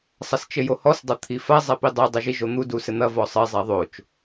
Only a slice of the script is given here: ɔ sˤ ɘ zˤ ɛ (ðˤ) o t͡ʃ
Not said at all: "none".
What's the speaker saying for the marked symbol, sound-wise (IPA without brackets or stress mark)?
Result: ðˤ